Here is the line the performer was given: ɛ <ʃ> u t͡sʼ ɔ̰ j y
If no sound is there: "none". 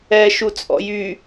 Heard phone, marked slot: ʃ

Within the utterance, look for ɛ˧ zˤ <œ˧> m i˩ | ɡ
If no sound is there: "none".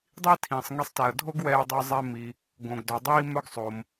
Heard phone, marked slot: ɛ˧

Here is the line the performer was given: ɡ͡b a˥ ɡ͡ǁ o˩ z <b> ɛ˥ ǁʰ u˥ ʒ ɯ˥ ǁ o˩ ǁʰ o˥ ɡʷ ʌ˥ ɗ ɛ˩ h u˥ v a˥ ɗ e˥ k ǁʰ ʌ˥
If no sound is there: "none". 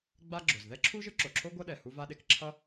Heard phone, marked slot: ð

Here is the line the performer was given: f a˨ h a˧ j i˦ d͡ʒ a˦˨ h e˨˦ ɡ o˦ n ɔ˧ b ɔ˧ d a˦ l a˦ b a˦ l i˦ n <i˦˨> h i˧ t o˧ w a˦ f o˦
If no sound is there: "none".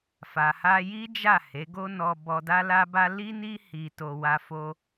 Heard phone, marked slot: i˦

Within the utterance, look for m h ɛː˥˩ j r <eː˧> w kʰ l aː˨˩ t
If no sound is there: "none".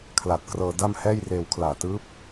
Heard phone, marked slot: eː˧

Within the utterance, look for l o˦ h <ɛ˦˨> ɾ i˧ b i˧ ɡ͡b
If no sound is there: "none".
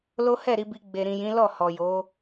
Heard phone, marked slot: ɛ˦˨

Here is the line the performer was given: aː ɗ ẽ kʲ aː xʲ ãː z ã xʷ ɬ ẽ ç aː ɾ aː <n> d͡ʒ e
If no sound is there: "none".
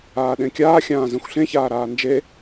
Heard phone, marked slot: n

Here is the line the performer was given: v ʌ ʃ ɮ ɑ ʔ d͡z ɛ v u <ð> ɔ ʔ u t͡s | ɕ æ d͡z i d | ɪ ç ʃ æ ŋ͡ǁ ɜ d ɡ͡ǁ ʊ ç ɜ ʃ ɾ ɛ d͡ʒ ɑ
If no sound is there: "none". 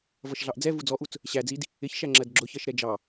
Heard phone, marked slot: d͡z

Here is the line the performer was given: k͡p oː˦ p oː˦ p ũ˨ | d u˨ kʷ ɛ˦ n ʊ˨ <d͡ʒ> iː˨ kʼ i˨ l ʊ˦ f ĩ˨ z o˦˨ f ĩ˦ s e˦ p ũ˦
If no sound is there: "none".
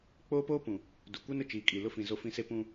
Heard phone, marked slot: t͡ʃ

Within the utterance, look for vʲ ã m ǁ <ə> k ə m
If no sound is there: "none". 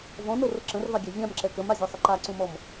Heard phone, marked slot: ɛ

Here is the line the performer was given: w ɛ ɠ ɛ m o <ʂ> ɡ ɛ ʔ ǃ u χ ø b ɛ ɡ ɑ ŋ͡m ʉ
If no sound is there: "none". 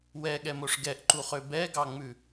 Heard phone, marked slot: ʂ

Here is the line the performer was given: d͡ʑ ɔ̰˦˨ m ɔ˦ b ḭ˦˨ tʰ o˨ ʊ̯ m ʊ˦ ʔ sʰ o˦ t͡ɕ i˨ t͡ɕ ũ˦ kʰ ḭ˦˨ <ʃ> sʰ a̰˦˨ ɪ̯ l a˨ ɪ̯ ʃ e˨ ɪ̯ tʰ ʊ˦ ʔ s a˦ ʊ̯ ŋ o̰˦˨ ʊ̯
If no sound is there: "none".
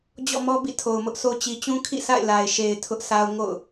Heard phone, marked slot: none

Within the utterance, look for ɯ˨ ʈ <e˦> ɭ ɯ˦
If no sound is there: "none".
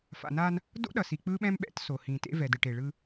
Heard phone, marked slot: e˨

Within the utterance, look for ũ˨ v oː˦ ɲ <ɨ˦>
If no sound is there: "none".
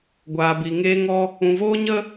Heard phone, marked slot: ə˦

